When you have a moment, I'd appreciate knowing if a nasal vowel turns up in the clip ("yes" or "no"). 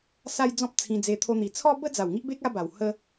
yes